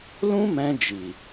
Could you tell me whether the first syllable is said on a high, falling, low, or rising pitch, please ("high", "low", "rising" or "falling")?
high